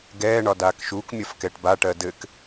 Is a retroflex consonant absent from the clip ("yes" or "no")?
no